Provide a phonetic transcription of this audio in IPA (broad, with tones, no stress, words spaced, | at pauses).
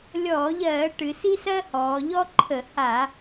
lʲɔː˧˩˧ʎɜː˧˩˧ ʈɨ˩˧si˥ sɜː˥hɔː˩˧ʎɔ˥ ǃʰə˧˩˧ha˧˩˧